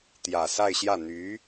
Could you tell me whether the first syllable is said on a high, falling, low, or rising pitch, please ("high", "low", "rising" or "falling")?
low